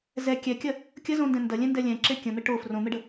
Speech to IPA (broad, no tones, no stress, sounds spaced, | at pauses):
z ɛ kʲ ɛ kʲ ɐ | kʲ ə z õ n d ɛ̃ n d ɐ lʲ ɛ̃ n d ɛ lʲ ɛ̃ ǁ e kʲ ə̃ n̪ ə ʈ o f r õ n̪ ə ɖ ə